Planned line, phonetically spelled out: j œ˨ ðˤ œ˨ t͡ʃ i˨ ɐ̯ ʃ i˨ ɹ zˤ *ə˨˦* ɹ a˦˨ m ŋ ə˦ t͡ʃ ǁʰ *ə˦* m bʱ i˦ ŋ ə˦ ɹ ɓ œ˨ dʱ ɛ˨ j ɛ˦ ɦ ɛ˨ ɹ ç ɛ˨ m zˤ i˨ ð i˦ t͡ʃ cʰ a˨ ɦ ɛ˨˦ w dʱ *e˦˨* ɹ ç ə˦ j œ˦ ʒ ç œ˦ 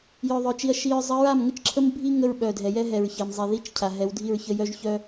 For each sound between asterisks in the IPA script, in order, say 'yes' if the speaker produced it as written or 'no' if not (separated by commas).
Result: yes, yes, no